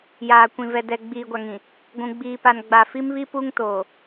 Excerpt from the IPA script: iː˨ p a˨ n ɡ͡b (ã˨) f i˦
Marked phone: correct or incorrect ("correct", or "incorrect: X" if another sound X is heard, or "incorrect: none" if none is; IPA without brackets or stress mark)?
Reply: incorrect: a˨